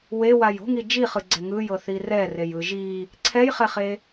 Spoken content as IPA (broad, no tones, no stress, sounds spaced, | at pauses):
w e w a j o̤ ŋ i d͡ʒ i χ ɯ ɡ͡ǀ ɛ ŋ ɯ j ɤ θ i r ɛ r e j ɯ ʒ i | ǀʰ ɛ j χ ɛ χ e